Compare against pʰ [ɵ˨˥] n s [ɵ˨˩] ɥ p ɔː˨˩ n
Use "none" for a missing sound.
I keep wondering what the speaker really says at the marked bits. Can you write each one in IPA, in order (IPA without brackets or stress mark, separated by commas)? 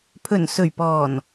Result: ɵ˨˩, ɵ˨˩